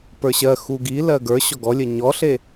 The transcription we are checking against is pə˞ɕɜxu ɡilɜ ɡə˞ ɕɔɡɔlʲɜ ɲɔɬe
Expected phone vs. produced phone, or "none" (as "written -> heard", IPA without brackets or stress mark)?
none